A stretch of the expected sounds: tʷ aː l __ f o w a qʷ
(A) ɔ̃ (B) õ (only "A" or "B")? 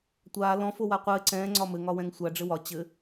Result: A